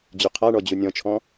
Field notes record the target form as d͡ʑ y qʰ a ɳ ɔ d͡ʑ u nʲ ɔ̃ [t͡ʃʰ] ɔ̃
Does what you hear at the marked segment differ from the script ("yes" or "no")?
no